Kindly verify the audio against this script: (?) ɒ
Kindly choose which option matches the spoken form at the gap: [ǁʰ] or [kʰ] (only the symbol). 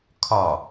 kʰ